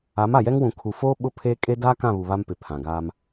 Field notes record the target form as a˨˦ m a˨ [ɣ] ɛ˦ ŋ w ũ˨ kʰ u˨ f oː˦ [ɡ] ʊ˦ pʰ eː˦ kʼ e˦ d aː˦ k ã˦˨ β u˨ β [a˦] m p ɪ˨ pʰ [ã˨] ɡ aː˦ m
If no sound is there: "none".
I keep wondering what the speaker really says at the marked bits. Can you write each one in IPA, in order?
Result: j, ɓ, a˦, ã˨

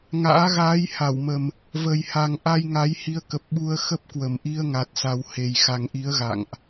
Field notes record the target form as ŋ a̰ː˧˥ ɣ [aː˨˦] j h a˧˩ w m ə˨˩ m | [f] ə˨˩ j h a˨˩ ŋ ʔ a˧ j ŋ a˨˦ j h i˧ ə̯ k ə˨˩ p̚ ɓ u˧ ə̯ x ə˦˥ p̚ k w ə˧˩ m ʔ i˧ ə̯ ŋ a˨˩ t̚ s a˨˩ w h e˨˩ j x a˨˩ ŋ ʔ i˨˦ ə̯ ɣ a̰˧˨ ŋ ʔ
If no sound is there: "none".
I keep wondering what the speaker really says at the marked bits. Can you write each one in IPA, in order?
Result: aː˨˦, v

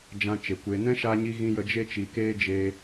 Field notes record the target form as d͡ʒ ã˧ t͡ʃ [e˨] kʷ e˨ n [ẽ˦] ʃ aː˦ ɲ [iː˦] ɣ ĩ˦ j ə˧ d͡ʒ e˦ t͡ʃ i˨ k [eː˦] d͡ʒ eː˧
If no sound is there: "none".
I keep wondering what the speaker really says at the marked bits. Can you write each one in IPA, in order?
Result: e˨, ɛ̃˦, i˦, eː˦

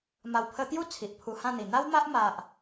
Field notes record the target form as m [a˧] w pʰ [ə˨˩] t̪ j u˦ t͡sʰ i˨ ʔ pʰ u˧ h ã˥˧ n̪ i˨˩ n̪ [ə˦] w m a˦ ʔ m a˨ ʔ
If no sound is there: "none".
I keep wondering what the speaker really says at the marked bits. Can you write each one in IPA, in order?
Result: a˨˩, ə˧, a˦

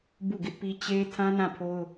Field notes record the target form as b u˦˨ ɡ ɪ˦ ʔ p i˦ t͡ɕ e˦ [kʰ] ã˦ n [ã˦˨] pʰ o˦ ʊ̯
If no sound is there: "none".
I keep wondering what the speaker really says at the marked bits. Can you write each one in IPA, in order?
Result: tʰ, ã˦˨

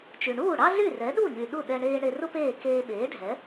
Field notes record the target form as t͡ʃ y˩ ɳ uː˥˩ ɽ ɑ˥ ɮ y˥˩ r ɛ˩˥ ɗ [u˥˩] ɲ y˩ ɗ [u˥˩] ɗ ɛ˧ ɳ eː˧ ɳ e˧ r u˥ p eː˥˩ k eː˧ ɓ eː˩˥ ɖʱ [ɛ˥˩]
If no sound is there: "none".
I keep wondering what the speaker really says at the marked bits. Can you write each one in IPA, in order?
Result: u˥˩, u˥˩, ɛ˩˥

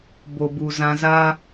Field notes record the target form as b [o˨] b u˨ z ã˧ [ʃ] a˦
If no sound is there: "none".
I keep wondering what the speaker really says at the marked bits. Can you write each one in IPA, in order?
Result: o˨, z

